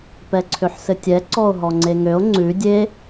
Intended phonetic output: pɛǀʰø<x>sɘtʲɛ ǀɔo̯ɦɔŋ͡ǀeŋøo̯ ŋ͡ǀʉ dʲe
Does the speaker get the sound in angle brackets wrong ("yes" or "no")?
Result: yes